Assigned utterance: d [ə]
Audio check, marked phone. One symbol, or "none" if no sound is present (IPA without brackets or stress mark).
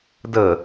ə